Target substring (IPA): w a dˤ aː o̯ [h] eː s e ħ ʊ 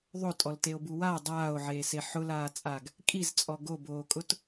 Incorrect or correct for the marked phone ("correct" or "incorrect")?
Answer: incorrect